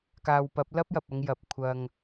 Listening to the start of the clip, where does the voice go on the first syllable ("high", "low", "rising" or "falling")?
low